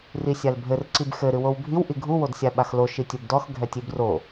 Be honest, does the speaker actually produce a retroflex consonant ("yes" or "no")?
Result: no